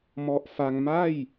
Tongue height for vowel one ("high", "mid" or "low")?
mid